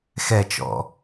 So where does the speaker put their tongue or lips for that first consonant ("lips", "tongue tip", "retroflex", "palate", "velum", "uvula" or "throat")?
velum